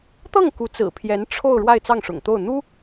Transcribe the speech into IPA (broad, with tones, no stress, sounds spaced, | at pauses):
t̪ ɤ˥˩ ŋ k u˧˥ t͡s ɹ̩˨˩ pʰ j ɛ˧˥ n ʈ͡ʂʰ o˥˧ ʊ̯ ɻ w a˥˧ ɪ̯ t͡s ɑ˥˩ ŋ ʂ ʊ̰˨˩ ŋ t̪ o˥˩ ʊ̯ n̪ u˥